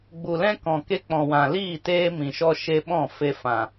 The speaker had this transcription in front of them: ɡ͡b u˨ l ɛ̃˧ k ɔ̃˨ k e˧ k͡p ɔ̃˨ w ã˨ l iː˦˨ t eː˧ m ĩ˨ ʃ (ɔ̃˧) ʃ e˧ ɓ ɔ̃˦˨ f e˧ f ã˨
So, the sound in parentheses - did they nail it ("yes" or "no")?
no